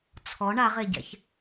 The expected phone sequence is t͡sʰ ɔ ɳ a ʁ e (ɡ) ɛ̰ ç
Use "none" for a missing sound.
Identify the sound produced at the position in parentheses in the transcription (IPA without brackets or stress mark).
ɟ